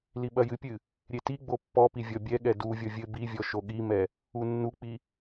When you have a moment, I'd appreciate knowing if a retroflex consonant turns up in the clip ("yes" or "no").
no